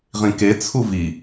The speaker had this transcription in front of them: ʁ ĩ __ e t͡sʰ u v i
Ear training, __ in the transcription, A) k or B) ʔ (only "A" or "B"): A